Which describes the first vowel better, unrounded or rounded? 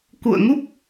rounded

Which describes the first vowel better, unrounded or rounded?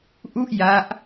rounded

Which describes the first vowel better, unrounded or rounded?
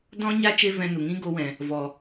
rounded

